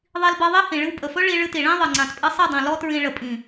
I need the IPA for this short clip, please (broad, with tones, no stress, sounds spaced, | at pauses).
ðˤ i˧ l b ɤ˧ ðˤ i˦ h ĩ˨ ɭ ɨ˧ w pʼ ə˨ f ɵ˦ ɭ i˧ ɭ ɨ˧ t i˨ ɭ ĩ˦ ðˤ ɨ˨ ŋ͡ǀ ã˨ t pʼ ɨ˧ sˤ ɨ˦˨ dˤ ĩ˨ l ɔ˦ t ɹ ĩ˧ ɭ ə˨ pʼ ĩ˨